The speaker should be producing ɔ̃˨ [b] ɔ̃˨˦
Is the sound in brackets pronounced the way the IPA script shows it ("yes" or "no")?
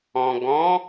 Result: no